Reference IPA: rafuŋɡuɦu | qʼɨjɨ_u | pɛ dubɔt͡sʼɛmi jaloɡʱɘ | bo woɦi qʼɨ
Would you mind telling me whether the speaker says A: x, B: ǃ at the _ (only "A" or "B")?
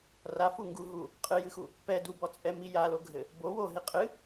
A